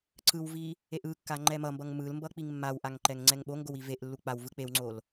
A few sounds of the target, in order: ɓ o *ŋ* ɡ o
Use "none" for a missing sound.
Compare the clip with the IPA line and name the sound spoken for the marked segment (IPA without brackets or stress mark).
ŋ